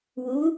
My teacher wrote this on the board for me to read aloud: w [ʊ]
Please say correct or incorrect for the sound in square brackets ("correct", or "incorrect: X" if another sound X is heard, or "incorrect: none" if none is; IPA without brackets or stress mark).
incorrect: u